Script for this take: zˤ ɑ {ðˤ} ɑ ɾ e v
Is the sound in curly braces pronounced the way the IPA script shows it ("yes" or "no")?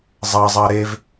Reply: no